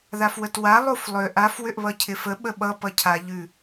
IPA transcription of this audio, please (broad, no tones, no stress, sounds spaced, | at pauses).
ð a f w ə t w a lˠ u f lˠ ʏ ʔ a f w ʏ ʔ β ʌ cʰ ɪ f ə ɓ ə ɓ ʌ p ʌ cʰ a ʎ ʉ